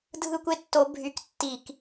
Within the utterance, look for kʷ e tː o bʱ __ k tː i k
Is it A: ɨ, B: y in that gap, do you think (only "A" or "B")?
B